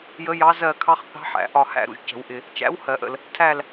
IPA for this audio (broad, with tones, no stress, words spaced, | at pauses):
jə˧˥jɑ˧˥ zɜ˦˨kʰɑ˧˥χ θɑ̤˧˥ħæ̰˨˩˦ ʔɒ˦˨hæ̰˦˨ɾṵ˨ʒ cə̤˨˩˦wʔɪ˨ | t͡ʃæ̰˧˥w hɜ˨˩˦ʔə̰˨l | tʰæ˦˨l